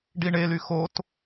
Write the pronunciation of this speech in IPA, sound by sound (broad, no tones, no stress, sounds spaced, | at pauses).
ɖ i ɳ e l y x o t